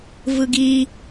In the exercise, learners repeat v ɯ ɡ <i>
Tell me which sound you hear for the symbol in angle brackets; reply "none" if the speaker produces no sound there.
i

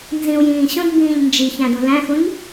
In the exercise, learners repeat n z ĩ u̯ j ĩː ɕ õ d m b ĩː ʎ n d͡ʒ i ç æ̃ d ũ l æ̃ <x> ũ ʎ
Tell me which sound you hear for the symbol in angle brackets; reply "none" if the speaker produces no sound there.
x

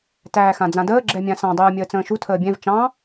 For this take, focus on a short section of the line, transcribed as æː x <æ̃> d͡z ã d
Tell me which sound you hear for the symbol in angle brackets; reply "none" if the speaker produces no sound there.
ã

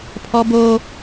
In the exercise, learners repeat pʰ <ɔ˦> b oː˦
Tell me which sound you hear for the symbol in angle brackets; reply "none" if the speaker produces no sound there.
ɔ˦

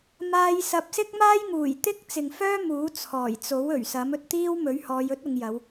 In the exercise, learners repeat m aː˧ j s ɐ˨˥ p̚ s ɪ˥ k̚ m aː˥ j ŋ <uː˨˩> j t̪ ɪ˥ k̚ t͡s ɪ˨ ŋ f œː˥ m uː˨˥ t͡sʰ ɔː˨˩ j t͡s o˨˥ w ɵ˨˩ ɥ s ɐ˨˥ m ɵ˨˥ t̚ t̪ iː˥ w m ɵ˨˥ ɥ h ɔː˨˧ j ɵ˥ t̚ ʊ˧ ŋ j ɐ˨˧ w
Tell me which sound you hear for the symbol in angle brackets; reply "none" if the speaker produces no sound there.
uː˨˩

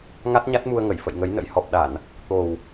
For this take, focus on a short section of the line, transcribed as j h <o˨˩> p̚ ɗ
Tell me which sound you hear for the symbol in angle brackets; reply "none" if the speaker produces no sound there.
ɔ˨˩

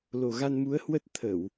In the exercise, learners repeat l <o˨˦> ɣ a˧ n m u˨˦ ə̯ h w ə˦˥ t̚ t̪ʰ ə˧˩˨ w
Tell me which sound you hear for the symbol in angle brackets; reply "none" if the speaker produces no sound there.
o˨˩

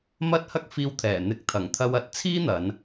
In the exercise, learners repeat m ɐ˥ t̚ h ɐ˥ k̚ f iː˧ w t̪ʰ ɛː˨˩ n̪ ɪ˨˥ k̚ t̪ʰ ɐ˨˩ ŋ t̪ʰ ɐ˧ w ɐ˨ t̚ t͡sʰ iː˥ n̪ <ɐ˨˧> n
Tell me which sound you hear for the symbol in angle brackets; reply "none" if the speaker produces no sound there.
ɐ˨˧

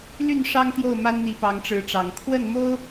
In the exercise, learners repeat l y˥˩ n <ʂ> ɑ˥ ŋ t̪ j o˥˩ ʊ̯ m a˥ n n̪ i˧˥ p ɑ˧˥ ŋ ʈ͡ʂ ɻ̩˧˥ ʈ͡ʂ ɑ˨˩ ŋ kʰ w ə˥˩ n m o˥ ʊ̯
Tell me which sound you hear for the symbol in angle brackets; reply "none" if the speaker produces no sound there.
ʂ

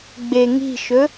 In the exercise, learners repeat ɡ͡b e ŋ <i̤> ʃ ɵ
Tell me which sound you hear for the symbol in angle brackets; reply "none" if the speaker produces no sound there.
i̤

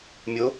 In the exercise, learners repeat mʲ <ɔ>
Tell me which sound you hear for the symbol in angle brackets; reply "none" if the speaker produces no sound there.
o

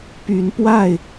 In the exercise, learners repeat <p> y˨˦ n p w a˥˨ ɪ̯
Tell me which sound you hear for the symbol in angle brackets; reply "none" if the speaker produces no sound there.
p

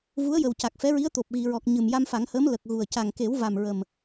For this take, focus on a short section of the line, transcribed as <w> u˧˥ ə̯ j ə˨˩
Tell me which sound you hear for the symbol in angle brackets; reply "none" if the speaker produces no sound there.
v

